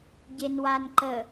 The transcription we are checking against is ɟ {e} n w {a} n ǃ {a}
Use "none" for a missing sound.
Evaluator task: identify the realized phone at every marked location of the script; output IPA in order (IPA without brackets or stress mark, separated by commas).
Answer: e, a, ə